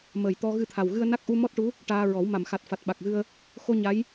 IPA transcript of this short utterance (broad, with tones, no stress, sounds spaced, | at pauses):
m əː˨˩ j t̪ ɔ˧ ɣ ɨ˧ t̪ʰ a˨˩ w ɣ ɨ˧ ə̯ n a˦˥ k̚ ʔ u˧ m ɔ˦˥ t̚ ʈ u˧˥ | ʈ aː˧ ɹ ɔ˨˩˦ w m a˨˩˨ m x a˨˩ t̚ f a˨˩ t̚ ɓ a˨˩ k̚ ɣ ɨ˧ ə̯ | x o˧ ɲ a˧˥ j